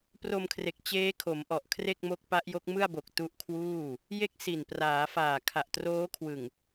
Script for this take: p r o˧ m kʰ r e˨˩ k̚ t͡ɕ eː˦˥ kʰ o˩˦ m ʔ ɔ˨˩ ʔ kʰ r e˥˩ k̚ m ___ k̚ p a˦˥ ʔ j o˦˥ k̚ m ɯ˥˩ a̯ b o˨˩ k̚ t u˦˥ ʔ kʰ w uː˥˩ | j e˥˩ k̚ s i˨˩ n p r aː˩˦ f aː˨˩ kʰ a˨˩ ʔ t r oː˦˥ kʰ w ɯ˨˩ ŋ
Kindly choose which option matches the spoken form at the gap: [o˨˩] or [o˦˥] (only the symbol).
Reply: o˦˥